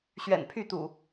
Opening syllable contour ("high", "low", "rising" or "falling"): low